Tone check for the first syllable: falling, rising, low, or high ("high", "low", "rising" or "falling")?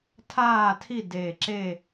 falling